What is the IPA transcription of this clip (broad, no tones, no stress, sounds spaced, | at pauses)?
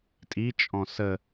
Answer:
tʼ i t͡ʃʼ ɔ̃ s ə